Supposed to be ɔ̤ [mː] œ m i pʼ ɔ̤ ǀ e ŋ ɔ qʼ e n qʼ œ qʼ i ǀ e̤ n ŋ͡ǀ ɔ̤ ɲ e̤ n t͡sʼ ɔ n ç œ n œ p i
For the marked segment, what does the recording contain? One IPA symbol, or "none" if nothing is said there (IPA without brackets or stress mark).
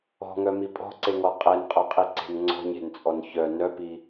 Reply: ŋ